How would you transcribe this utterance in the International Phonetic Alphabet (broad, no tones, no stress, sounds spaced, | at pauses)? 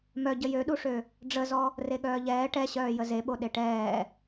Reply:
m œ ɟ ə j ø ɗ u ʂ ø | ɖ͡ʐ ə z ɔ | r e ɠ œː ʎ ɛː ʈ ɛ ɕ œː j ə z e ɓ o ɗ e ʈ ɛː